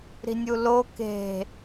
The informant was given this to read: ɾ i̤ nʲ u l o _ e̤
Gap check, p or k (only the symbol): k